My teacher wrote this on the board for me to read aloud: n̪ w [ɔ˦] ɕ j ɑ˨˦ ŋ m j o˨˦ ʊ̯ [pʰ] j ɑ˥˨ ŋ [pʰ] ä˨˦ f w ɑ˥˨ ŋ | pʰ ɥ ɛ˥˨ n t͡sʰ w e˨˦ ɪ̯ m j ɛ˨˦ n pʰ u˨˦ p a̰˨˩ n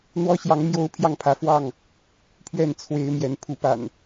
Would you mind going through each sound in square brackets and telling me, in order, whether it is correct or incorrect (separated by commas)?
correct, correct, correct